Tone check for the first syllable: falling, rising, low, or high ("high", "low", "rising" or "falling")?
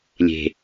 low